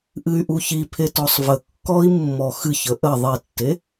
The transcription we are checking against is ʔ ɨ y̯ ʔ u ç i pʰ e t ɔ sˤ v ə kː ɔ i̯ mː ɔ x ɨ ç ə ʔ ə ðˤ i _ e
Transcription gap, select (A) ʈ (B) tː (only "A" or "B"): B